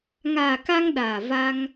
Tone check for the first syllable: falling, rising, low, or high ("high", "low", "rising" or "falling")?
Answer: low